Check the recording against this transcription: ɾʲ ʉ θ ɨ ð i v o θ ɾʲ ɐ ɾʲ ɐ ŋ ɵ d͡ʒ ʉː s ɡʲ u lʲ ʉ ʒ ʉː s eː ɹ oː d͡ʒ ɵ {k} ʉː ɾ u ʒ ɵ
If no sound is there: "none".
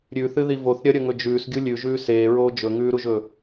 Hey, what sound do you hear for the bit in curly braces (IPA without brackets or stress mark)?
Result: ŋ